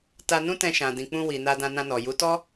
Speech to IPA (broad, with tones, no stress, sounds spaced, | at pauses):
t a˧ n ũ˦ t ɛ̃˧ ʃ ã˨ d ĩ˨ k͡p ũ˧ w i˨ n a˧ d ã˧ n ã˧ n ɔ˨ j u˨˦ t ɔ˦